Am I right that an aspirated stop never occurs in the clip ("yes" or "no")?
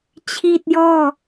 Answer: no